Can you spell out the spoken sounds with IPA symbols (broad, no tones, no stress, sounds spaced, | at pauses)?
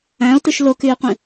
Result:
æ̃ o̯ t ɯ ʃ l o k y e̯ qʷ ĩ